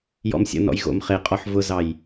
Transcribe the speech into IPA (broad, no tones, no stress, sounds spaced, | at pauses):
j ɔ̰ m sʲ ə̰ n ɔ̰ j ɣ o̰ m χ e qʼ ɔ ħ v ʊ z ɑ j